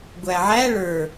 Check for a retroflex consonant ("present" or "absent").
present